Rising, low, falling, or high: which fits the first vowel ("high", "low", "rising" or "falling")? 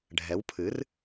rising